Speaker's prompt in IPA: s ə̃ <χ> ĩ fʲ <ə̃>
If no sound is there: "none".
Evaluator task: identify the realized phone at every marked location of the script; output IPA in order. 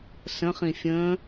χ, ə̃

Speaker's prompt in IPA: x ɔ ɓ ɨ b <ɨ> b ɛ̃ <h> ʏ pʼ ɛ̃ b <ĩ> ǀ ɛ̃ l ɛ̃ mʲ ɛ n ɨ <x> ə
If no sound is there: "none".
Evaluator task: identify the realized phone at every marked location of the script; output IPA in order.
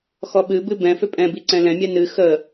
ɨ, f, i, x

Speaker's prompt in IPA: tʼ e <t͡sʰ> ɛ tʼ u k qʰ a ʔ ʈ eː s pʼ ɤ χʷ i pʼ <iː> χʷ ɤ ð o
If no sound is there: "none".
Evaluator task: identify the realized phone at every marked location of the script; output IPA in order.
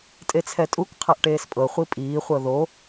t͡sʰ, iː

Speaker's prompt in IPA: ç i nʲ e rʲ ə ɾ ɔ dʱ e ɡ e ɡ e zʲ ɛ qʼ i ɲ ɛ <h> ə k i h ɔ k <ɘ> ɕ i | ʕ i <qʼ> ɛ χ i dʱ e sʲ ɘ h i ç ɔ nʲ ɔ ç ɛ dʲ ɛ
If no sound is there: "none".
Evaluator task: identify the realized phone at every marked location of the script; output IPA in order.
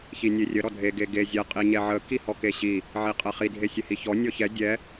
ʕ, e, qʼ

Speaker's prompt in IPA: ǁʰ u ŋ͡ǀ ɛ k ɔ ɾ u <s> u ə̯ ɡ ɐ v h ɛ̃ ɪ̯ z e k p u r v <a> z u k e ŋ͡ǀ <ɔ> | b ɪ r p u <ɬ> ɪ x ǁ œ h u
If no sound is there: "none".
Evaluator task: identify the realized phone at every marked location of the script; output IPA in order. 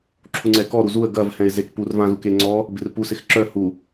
z, ã, ɔ, s

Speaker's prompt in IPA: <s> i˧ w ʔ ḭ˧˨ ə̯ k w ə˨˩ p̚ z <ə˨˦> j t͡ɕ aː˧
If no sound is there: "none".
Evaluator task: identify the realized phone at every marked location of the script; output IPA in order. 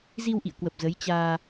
z, ə˨˦

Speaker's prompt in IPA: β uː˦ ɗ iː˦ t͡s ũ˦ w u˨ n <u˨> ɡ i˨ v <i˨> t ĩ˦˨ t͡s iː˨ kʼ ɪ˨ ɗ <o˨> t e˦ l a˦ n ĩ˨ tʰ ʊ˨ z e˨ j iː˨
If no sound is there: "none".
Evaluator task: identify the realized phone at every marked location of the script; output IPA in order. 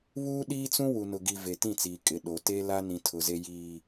ʊ˨, e˨, o˨

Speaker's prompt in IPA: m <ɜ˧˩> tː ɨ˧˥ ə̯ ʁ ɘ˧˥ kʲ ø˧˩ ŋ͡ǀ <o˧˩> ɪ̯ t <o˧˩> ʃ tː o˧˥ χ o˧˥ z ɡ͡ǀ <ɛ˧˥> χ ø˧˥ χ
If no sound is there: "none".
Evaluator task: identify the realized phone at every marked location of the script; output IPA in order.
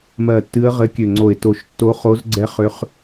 ɜ˧˩, o˧˩, o˧˩, ɛ˧˥

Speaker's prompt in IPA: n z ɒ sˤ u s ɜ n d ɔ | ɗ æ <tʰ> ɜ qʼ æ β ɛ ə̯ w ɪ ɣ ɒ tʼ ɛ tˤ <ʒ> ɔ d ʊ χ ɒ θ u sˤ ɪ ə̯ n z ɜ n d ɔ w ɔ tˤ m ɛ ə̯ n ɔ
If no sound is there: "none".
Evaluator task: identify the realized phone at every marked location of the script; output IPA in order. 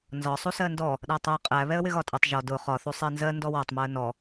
tˤ, ʒ

